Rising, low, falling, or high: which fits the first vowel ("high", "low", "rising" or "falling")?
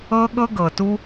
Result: high